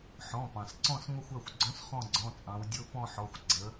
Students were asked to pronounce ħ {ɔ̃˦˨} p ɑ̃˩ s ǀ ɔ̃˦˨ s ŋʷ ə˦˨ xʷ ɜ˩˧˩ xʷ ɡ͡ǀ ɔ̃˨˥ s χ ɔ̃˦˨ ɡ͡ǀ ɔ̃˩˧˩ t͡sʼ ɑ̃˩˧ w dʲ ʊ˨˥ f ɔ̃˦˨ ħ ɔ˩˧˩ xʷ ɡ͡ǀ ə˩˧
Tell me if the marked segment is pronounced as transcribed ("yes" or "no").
no